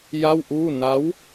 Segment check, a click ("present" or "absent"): absent